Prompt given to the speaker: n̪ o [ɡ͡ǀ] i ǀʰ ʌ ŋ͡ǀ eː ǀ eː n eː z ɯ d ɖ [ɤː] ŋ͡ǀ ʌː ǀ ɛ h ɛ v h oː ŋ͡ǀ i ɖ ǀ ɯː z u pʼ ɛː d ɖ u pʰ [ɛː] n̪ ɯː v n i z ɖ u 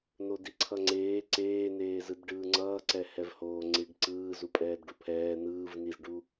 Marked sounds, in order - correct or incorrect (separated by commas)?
incorrect, incorrect, correct